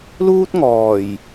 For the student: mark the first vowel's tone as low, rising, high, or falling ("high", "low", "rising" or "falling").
high